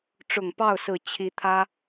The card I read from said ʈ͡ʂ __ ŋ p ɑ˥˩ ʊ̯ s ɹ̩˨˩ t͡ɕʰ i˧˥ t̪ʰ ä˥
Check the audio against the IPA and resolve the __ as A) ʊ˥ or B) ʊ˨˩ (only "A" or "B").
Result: B